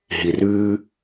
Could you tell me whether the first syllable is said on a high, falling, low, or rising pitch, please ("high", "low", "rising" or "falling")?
low